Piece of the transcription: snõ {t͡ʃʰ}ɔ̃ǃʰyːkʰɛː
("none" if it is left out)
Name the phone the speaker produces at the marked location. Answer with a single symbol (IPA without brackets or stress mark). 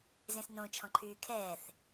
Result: t͡ʃʰ